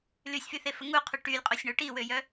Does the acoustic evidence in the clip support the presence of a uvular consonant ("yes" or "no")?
yes